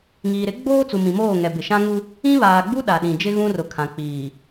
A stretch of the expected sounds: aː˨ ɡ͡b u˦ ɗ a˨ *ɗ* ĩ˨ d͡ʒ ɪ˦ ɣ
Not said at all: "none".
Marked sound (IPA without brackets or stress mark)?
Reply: ɗ